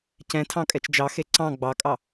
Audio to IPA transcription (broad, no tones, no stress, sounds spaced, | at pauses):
c ɛ̃ tʰ ɑ̃ kʼ ɛ t͡ʃ d͡ʒ ɑ x e ǀ ɑ̃ ɡ͡b ɑ kʼ ɑ